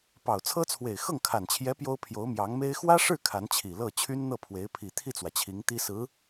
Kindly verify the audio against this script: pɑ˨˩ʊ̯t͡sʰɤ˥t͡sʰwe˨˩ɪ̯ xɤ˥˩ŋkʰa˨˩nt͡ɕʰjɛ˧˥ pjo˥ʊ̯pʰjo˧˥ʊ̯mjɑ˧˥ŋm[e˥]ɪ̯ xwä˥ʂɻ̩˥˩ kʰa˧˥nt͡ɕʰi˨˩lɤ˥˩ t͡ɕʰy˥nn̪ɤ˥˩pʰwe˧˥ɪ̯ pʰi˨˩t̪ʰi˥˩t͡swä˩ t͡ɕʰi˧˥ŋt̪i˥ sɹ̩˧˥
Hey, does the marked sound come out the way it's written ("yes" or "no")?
yes